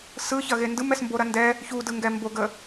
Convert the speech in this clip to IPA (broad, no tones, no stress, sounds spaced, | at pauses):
s ɯ ç ɐ ɣ e n d ɯ m ɛ s m b o ɾ ɐ n d ɛ | ç u d ɯ ŋ ɡ ɛ m b o ɡ ə